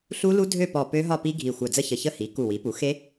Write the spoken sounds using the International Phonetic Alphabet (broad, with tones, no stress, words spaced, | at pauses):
ɬu˦˥lu˦˥ dʱø˥˧pɔ˧˩ pø˦˥ɦɒ˥˧pi˦˥ ɡʱi˧˩xʷœ˧˩d͡zə˥˧çə˧˩ çə˥˧ hi˩˥ ku˧˩wi˩˥pu˩˥ xe˦˥